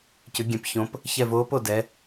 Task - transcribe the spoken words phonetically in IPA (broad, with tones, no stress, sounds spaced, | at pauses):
c ʏ˩˧ ɡʲ ɛ̃˩˧ p ç õ˩˧ p | ç ɛ˦˨ v oː˧˥ p o˦˨ d ɛ˩˧